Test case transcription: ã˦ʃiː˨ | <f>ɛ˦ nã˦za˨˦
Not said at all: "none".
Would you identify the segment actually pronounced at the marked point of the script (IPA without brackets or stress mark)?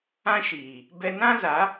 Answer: b